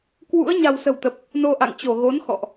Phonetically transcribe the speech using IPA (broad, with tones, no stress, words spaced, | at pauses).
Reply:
kwṵ˧˥ə̯ ɲa̤˨˩wsə̤˨˩wt̪ə˨˩p̚ | no˧ʔa̰˧˨ŋt͡ɕo˧˩ ɣo˨˦nxɔ̰˧˨ʔ